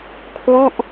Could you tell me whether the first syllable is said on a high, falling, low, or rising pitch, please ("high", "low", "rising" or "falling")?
falling